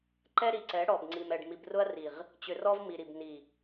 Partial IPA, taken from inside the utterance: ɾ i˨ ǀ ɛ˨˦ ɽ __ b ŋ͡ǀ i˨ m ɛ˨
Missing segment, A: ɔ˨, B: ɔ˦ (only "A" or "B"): A